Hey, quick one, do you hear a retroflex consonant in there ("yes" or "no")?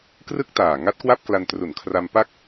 no